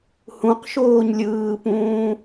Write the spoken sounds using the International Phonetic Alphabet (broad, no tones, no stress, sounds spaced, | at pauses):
h ũ q ʃ oː ɲ lʲ ɯː p ũː